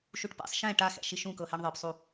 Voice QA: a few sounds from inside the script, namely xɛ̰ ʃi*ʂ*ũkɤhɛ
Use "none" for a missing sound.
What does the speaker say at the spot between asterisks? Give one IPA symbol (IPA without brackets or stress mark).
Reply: ʃ